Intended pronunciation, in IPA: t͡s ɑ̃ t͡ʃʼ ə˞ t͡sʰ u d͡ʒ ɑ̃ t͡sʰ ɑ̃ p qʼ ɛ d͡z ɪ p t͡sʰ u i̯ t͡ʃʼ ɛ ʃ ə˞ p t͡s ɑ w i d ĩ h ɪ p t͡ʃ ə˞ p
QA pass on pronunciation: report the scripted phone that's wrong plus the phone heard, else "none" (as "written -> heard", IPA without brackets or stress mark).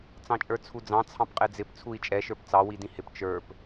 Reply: d͡ʒ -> d͡z